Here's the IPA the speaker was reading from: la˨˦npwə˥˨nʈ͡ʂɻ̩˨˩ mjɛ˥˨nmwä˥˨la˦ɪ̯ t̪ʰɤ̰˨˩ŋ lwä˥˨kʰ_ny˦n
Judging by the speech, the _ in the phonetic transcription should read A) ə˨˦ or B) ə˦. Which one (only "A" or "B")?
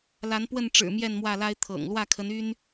A